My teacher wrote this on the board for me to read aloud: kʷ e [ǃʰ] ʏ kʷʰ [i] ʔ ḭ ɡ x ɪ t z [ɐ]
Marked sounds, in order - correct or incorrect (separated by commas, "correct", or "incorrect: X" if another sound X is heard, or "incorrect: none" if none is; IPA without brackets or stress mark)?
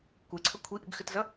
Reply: incorrect: ǀʰ, correct, correct